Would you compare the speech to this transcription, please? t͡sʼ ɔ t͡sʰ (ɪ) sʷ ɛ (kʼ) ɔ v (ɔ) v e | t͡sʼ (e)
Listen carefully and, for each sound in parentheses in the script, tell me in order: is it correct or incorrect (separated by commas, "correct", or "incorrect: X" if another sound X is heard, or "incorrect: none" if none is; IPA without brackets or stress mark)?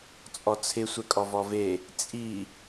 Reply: correct, correct, correct, incorrect: i